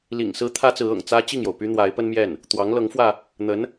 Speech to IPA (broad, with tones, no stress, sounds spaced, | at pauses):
l ḭ˨˩ ŋ s ɹ̩˥ t̪ʰ ä˥ t͡s ɹ̩˧˥ ɤ̰˨˩ ŋ t͡s ä˥ t͡ɕ i˥˩ ŋ j o˩ ʊ̯ p y˥ n̪ w a˧˥ ɪ̯ p ə˥ n m j ɛ˥˩ n | t̪ w ɑ˧˥ ŋ l ɤ˧˥ ŋ f w ä˧ | n̪ ə˧˥ n